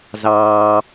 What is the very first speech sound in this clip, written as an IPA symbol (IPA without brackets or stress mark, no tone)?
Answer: z